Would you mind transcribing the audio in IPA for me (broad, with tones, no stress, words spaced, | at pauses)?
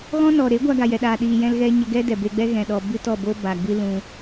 ɣɔ̃˦nɔ˨ ɾe˨˦ɡʷa˧ɡa˨ jɛ˨ɗaː˨ɗiː˨ jɛ̃˧lɣɛ˧ ɲə˧ɡɛ˦ dɛ˨be˧ɡ͡bɛ˦ ɣɛ̃˨ɗɔ˨ bɨ˦tɔ˦˨bo˦ ba˨ɡ͡bɨ˧ lũ˧